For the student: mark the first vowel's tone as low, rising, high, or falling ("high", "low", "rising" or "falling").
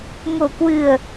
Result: low